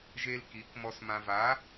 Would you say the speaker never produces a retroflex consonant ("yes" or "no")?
yes